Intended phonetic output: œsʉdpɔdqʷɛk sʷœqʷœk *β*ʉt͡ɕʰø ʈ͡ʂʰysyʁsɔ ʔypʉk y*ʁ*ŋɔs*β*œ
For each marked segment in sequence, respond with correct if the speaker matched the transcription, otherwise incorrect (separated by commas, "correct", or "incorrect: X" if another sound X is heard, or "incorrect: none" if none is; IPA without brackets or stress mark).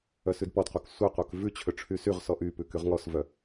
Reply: incorrect: v, correct, incorrect: v